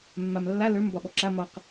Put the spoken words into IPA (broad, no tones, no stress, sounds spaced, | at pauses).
mː a m lː a l ə˞ m b ɒ ɓ ɔ ǁ a m ɒ q